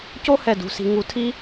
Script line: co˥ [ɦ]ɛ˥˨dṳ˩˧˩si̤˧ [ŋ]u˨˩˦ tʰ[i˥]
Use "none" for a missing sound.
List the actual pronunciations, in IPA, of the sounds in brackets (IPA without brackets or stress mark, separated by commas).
h, ŋ, i˥